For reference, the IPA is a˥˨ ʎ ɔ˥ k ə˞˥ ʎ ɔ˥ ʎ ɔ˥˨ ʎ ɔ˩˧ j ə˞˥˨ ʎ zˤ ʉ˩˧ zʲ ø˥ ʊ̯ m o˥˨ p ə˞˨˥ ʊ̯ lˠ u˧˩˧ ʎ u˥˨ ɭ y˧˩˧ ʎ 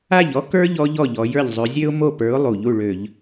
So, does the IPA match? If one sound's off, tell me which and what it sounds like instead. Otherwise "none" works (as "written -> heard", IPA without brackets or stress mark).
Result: y˧˩˧ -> ø˧˩˧